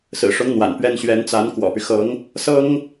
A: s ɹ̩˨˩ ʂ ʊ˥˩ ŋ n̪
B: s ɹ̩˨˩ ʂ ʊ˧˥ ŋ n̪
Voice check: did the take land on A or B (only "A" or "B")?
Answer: B